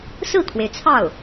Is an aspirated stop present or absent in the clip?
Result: present